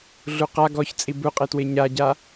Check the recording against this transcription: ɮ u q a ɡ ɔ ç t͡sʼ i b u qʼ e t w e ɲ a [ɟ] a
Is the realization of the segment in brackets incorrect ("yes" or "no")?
no